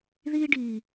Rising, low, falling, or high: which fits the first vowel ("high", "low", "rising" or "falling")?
high